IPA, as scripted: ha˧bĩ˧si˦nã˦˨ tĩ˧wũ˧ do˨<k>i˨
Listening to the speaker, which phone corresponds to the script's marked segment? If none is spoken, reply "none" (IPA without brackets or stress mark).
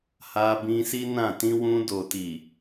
t